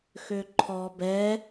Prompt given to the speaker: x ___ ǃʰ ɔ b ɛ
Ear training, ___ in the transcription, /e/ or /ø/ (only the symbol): ø